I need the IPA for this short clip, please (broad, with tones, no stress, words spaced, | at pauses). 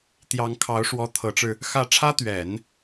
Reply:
t̪jɑ˧˥ŋkʰɑ˧˥ʊ̯ʂwɔ˧˥ t̪ʰɤ˧˥ʈ͡ʂɻ̩˧ | xä˥˩ ʈ͡ʂʰä˥t̪ɥɛ˨˩˦n